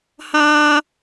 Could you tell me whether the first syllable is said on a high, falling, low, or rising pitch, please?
high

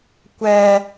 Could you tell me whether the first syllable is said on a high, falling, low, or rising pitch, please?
high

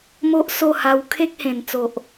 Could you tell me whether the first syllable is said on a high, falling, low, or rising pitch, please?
high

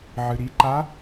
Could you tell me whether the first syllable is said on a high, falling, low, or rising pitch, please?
low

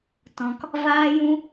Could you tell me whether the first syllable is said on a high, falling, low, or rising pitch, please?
high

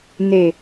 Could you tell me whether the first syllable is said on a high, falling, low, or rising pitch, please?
low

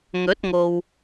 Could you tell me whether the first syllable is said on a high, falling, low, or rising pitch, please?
rising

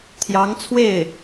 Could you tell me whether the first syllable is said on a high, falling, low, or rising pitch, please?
rising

